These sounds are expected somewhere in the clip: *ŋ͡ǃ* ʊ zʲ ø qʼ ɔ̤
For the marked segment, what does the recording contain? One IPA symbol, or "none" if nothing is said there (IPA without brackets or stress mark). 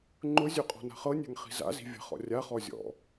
ŋ͡ǃ